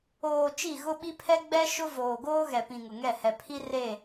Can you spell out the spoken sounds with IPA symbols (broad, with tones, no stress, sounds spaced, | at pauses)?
oː˨ t͡ʃ i˦˨ ɣ ʊ˦ ɓ i˦ pʰ ɛ˦ ɡ͡b ɛ˦ ʃ ʊ˦ v oː˨ ɡ oː˦ ɣ ɛ˨ p ĩ˨ ŋ ʊ˨ ŋ ɛ˦˨ h ɛ˨ pʰ i˦ r e˦˨